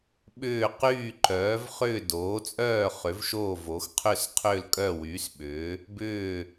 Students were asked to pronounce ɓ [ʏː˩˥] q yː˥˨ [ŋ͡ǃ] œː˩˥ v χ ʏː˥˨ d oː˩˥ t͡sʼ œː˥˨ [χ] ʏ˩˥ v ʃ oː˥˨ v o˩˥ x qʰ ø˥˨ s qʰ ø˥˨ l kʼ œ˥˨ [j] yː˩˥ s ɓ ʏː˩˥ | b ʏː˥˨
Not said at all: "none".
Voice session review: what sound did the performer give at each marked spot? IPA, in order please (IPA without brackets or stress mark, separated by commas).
ʏː˥˨, ǃ, χ, w